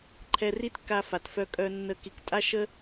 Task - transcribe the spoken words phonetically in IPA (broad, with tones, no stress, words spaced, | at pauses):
ǃʰɛ˧ ri˦tkːa˧fa˨tfœ˧ kʼœ˧ nːə˧ ki˨ktʼa˦ʃə˦